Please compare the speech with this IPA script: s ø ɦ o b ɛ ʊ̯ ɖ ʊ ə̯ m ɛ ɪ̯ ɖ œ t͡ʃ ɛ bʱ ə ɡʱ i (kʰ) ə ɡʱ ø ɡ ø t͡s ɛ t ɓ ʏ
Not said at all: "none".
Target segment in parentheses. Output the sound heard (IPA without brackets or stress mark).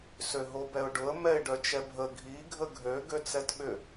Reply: ɡʱ